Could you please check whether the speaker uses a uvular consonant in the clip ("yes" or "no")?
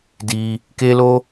no